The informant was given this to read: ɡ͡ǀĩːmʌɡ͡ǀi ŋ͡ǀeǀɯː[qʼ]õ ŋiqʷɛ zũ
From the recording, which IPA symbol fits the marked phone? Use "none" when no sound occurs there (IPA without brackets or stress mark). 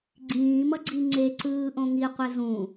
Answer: ʔ